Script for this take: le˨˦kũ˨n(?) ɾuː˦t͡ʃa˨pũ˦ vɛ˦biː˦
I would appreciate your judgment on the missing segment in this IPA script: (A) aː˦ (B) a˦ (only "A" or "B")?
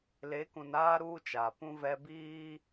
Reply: A